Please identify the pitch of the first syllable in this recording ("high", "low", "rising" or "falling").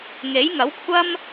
rising